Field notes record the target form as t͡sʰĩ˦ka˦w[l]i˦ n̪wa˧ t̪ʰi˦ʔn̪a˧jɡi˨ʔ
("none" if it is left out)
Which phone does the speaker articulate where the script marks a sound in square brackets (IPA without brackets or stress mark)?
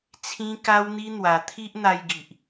n̪